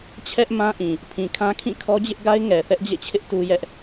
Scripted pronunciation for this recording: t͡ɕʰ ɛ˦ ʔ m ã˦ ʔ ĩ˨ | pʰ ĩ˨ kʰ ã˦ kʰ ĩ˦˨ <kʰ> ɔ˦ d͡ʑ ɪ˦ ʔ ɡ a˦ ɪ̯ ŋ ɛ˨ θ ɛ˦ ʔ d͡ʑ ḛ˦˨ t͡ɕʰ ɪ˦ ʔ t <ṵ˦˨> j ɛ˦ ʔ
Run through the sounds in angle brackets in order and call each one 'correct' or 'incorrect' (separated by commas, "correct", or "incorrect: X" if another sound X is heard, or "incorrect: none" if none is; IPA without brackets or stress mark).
correct, incorrect: u˦